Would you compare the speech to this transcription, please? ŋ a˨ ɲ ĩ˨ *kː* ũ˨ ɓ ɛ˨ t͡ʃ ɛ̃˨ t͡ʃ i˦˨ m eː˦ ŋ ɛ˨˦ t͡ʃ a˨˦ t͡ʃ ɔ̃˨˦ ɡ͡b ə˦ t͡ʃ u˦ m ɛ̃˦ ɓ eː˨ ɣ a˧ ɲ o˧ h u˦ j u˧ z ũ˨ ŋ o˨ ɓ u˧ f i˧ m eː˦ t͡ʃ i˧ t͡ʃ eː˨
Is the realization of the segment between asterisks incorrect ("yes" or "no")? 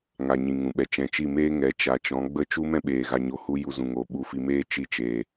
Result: yes